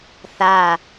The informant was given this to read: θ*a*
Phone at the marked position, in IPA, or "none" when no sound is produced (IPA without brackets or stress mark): a